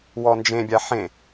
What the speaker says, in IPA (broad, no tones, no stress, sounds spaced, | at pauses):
w ɔ n d͡ʒ ẽ bʲ a ħ ẽ